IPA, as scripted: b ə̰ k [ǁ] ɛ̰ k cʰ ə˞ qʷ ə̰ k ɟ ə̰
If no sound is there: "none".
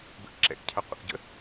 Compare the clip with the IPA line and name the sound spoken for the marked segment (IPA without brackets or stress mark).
ǁ